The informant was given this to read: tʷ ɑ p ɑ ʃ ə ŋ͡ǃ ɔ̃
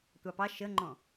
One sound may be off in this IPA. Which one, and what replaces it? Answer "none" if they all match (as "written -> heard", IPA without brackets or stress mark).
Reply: none